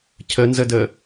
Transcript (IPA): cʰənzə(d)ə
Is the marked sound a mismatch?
no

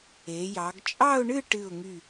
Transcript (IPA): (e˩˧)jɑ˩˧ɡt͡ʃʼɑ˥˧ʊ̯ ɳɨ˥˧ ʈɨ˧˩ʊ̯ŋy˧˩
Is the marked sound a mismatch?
no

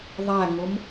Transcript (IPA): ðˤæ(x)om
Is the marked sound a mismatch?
yes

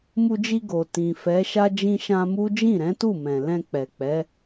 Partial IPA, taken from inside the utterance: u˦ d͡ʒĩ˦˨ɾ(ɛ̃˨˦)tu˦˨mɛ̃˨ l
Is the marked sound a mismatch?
no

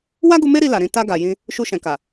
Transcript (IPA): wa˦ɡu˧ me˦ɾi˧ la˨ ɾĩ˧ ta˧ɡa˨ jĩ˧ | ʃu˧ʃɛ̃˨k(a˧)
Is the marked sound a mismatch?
yes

